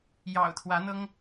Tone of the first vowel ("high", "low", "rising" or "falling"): low